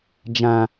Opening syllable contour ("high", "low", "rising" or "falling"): low